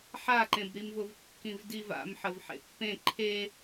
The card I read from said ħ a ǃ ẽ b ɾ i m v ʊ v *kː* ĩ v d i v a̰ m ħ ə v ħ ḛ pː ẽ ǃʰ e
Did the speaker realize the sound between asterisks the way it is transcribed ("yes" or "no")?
yes